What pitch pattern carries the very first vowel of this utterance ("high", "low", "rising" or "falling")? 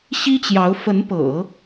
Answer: high